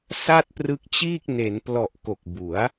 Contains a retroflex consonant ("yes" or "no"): no